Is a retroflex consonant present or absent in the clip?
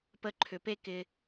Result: absent